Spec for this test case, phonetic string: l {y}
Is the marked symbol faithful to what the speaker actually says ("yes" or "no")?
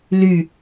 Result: yes